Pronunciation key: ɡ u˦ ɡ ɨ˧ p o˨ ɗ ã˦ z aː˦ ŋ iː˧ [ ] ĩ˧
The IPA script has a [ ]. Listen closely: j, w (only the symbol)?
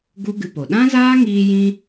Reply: j